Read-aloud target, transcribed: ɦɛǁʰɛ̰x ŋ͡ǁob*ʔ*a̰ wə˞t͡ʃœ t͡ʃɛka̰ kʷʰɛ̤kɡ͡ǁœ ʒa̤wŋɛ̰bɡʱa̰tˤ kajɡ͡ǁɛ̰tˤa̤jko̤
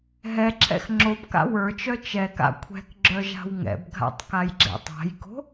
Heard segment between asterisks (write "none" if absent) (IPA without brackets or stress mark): k